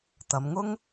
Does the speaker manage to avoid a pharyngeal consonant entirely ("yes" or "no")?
yes